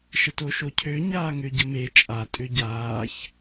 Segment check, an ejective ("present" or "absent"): present